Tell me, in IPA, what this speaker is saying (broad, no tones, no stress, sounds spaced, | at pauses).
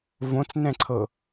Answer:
v õ t͡s n ɛ̃ ǀʰ ɤ